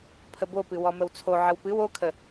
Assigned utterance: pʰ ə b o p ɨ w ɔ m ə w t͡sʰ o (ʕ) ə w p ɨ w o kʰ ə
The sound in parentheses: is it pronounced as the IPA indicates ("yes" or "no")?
yes